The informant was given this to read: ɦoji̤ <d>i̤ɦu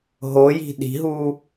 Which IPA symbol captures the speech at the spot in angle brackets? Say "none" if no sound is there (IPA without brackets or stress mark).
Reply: ɗ